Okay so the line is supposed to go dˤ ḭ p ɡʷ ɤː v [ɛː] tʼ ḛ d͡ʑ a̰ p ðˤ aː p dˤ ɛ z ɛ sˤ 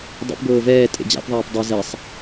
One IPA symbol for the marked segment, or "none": ɛː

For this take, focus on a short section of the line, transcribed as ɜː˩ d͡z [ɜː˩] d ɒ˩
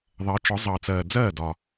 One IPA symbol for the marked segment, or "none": ɜː˥˩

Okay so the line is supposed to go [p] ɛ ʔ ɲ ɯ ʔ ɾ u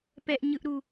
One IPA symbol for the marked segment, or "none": p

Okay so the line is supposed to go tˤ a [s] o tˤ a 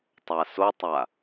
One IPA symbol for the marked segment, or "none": s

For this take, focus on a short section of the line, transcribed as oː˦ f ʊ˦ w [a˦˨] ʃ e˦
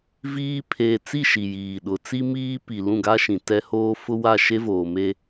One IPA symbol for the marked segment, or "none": a˦˨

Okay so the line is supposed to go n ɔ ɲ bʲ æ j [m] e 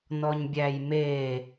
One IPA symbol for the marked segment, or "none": m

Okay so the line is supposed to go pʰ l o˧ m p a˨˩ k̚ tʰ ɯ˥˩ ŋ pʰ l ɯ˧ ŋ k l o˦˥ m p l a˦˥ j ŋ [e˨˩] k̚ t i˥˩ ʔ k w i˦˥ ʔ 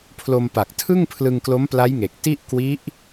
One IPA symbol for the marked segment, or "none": e˨˩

